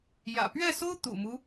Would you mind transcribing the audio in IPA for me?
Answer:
jä̰˨˩ pɥɛ˥˩so˥ʊ̯ t̪ṵ˨˩mu˦

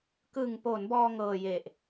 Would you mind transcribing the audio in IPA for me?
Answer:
kɯ˨˩ŋpo˩˦n bɔː˧ŋɤː˨˩je˨˩ʔ

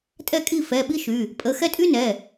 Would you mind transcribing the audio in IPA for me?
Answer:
tʼɛ˥˨kʼi˥˨ fɛ˩˧˩ɓi˥ʃy˩˧˩ | pʼə˩˧˩xɛ˥˨ tʼy˥nɛ˩˧˩

